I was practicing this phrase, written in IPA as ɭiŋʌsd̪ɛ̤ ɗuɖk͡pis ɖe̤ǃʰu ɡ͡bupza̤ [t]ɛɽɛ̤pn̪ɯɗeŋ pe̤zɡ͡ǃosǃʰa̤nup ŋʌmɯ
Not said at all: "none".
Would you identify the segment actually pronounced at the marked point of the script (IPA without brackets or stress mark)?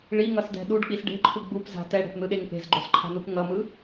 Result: t